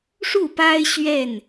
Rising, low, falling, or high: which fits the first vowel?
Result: falling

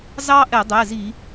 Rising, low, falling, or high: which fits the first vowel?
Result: high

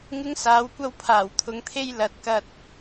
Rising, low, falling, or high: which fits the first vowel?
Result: high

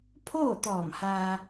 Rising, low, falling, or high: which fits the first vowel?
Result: falling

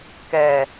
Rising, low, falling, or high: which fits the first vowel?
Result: low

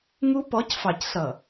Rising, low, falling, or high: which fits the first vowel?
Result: high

